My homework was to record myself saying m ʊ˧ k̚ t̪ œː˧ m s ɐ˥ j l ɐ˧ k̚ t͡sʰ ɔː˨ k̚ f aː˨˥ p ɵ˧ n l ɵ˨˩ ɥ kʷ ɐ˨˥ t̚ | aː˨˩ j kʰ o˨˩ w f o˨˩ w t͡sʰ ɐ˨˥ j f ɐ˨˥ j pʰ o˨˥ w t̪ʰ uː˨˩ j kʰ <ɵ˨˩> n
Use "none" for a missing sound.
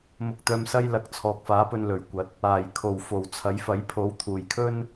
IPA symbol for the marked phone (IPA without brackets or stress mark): ɵ˥